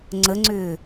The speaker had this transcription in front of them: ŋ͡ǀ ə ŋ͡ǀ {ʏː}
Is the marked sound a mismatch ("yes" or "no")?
no